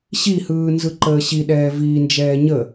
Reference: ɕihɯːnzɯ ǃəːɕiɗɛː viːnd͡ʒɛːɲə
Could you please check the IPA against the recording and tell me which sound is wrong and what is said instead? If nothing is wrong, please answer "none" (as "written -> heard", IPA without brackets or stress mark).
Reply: none